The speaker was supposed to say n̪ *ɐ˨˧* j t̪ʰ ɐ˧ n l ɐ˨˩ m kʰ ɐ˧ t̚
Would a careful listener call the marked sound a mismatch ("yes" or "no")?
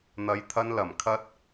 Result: no